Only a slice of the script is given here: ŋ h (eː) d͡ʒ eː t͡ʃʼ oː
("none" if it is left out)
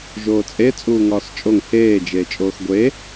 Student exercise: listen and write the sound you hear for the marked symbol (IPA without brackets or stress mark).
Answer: eː